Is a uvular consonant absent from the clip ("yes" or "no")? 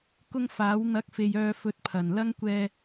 yes